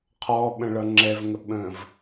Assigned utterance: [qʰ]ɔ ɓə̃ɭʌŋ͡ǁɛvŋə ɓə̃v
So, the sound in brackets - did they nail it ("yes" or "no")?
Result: yes